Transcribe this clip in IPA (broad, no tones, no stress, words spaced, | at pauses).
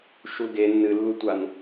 ʃulɡe nːɨlːutʷan